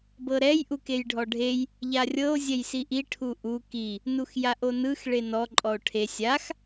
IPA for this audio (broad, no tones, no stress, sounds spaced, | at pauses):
b ɤ ɾ ɛ j ʔ u k e j ɖʱ ɔ ɖʱ e j | ʎ a rʲ ɤ o̯ zʲ ɛ j s i ʔ i ʈʰ u ʔ u k i | n u x j a ʔ o n ɯ x ɭ e n ɔ ǃʼ ɔ o̯ ʈʰ e sʲ a x